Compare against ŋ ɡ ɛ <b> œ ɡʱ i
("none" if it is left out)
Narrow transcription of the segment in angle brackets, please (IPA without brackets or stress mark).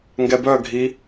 b